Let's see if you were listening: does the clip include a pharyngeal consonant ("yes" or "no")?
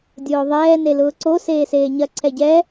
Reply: no